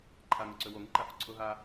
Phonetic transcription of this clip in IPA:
ǃʰ a ŋ ʊ ǀ ø w o ŋ i ǃ a f ʊ ǀʰ ʊ ɦ a

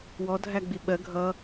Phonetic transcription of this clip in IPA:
w ɔ dʱ æ ɡ͡b i ɓ ɜ ɡʱ ʌ

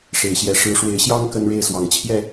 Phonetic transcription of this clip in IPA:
ʂ e˨˩ ɪ̯ ɕ j ɛ˨˦ ʂ ɻ̩˨˦ ʂ w e˨˦ ɪ̯ ɕ j ɑ˦ ŋ k ə˦ n ɻ e˥˨ ɪ̯ s w ɑ˨˩ ŋ t͡ɕʰ j ɛ˥˨

